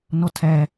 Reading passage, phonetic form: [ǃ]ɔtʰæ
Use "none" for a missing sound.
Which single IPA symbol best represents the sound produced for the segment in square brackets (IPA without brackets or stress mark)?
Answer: n